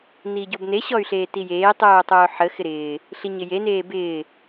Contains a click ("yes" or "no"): no